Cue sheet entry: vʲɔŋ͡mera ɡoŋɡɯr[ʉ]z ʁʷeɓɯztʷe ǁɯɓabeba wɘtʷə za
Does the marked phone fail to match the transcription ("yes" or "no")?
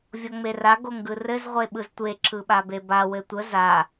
yes